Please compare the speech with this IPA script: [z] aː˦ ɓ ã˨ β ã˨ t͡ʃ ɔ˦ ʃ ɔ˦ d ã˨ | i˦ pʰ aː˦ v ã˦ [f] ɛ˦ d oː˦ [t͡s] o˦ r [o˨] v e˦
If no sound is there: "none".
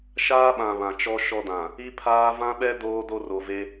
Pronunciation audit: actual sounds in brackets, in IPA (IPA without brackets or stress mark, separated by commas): ʃ, ɓ, d, o˨